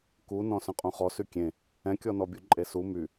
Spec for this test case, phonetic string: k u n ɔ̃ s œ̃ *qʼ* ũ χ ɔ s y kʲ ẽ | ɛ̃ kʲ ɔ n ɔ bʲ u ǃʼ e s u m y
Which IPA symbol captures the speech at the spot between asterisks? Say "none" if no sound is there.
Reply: qʼ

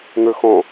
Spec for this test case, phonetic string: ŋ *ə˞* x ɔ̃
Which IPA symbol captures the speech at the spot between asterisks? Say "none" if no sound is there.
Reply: ə˞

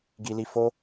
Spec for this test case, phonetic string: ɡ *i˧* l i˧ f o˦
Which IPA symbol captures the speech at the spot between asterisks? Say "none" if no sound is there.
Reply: i˧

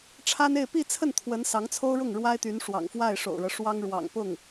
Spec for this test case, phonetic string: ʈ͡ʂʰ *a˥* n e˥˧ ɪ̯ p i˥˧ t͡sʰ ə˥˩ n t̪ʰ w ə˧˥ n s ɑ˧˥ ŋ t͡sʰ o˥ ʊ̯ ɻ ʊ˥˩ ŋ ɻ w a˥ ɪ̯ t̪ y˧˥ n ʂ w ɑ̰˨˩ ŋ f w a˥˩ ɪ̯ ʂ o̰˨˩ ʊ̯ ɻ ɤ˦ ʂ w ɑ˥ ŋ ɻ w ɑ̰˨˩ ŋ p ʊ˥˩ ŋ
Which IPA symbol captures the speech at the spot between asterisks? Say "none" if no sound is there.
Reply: a˥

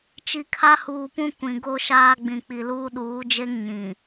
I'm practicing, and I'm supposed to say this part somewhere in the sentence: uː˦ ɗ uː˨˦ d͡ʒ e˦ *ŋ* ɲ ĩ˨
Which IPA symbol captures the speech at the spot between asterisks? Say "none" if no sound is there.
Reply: ŋ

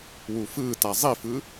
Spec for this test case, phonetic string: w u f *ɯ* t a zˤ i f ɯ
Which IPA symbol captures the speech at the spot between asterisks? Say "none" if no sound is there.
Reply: ɯː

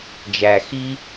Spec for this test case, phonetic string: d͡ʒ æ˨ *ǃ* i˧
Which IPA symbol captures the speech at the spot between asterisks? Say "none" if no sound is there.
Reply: x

